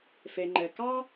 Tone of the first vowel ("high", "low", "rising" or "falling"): low